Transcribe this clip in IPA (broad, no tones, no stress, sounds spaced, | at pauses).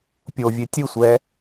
pʲ o vʲ e tʲ ɯ sʷ ɛ